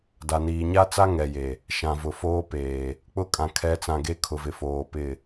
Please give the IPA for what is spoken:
da˨niː˨ ɲa˦t͡sa˦ ŋɛ˨je˨ | ʃã˨vʊ˨foː˦ peː˨ | k͡pʊ˦˨kʼã˨ kʰɛ˨˦t͡sã˨ ɡe˦kʰʊ˨vɪ˨foː˨ pɪ˦˨

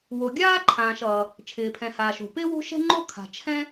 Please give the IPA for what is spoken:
wo˩ɡʲaː˥ǃʰãː˩ʃ ʌː˩ | t͡ʃʰɪː˩pʰɛ̃˩haː˩ʃo̤˩ pɪː˥wo̤˥ʃɛ̤˥ŋ͡ǃo˥ kʰa̤˩t͡ʃʰɛ̃˥

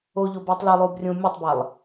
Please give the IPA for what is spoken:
oʎobuːtˤ lilˠuːbrʲũː mʲʌtˤbalˠ

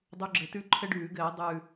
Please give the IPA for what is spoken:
dˤu˨˦ɡ͡ǁɘ˨˩tʉ˥˨ ǃʰɘ˦ɖʉː˧˩˧ɡɘː˧˩˧ dˤʉ˨˩

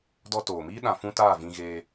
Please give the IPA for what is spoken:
dɔ˧toː˨miː˦ ɗã˧fũ˦taː˦˨ vĩ˧ɣeː˧

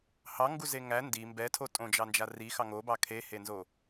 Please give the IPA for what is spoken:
hɑŋɡu zeŋæ ndi mbɛtʰo tʼõd͡ʒɑnd͡ʒa ri xɑŋobɑ kʰehenzo

